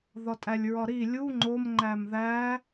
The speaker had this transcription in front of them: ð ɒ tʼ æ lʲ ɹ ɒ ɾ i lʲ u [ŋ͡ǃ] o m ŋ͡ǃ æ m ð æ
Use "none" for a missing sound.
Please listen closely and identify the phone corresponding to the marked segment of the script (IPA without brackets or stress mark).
ŋ͡ǃ